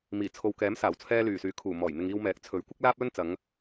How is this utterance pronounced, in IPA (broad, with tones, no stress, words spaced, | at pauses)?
miː˨˩t͡sʰo˨wkɛː˨˥m saː˨˩wt͡sʰɛː˧ lyː˨˩syː˨˥kʰuː˨˩ mɔː˨˩jn̪ɪ˨ŋ iː˧wmɛː˨˥k̚ t͡sʰɵ˨˥ɥ kʷɪ˥k̚laː˥p̚lɵ˥n t͡sɐ˨˧ŋ